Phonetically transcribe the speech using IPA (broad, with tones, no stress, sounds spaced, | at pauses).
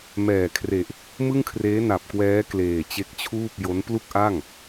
m ɛː˨˩ kʰ r e˨˩ ʔ | m ɯ˥˩ ŋ kʰ r eː˦˥ n a˨˩ p̚ k w ɛː˦˥ k l eː˨˩ t͡ɕ e˦˥ k̚ t͡ɕʰ uː˥˩ p̚ j o˦˥ n p l u˥˩ k̚ ʔ a˥˩ ŋ